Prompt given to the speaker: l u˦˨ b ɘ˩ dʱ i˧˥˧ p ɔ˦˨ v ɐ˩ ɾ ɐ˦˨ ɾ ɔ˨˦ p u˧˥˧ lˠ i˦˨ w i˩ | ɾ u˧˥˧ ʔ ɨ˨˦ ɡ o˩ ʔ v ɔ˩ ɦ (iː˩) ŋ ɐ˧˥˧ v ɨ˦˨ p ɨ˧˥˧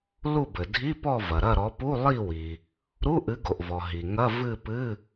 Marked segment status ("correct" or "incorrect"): incorrect